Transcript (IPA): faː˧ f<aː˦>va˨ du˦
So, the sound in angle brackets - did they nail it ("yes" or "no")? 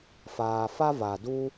no